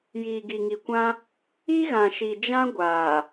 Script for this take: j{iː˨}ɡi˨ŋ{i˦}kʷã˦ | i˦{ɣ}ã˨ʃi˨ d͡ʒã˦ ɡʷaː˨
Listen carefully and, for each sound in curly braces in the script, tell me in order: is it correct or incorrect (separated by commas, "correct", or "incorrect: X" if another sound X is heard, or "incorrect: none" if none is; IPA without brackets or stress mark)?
correct, incorrect: i˨, correct